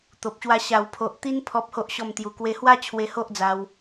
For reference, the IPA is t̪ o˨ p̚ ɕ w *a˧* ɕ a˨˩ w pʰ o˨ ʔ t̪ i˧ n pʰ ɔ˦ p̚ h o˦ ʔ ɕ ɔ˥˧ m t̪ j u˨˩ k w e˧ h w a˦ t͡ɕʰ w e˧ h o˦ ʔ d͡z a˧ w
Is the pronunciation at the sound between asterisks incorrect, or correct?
correct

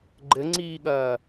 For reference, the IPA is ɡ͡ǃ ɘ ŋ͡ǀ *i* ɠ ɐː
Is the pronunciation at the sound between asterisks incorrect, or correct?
incorrect: iː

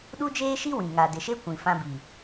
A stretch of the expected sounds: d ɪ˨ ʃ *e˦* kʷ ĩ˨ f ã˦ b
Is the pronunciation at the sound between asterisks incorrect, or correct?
correct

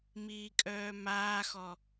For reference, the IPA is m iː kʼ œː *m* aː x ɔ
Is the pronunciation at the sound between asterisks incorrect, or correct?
correct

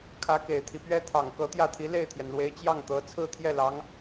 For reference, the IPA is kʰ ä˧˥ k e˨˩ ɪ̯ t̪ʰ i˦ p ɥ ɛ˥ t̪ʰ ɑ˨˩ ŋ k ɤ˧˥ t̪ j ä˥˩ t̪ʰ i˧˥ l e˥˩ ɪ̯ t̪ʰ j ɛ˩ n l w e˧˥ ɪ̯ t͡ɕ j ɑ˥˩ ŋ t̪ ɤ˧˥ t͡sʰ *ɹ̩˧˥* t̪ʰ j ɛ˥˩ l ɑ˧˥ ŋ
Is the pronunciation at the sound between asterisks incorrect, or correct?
incorrect: ɹ̩˥˧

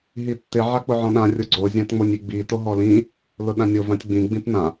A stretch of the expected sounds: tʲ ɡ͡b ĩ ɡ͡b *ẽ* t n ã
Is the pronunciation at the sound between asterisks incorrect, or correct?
incorrect: ĩ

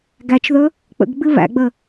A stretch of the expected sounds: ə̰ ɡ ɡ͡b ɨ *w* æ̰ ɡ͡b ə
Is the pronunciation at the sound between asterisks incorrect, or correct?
incorrect: β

